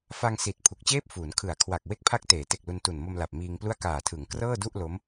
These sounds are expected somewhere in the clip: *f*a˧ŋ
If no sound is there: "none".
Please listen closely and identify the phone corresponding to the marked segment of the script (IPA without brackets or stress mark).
f